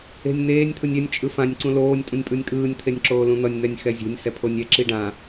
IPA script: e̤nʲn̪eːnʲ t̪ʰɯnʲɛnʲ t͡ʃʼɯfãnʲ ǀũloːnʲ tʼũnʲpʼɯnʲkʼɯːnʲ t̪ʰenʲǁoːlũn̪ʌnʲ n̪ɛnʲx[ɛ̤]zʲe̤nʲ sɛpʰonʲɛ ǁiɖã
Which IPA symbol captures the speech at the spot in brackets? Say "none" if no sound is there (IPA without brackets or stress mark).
ɛ